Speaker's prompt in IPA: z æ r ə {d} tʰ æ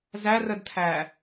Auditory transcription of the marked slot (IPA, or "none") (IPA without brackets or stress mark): d